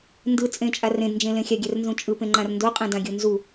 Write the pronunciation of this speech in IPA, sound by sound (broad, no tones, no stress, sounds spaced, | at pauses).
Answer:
n d ɯ t͡sʼ ẽ t͡ʃʼ a r ẽ d n d͡ʒ ẽ l ẽ xʲ a ɡʲ ɛ r n z ũ t͡ʃʼ ɯ p ẽ ŋ͡ǃ ã r n d o qʼ ẽ d ã ɡʲ u n z u